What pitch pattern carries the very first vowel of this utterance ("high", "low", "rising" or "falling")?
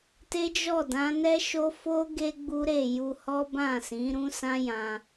high